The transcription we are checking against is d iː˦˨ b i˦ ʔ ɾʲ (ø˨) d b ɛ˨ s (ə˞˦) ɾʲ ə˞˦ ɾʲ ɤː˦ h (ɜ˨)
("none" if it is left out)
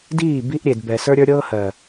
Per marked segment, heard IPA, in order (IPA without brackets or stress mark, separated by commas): e˨, ə˞˦, ɜ˨